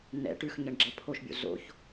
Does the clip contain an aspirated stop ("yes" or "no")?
yes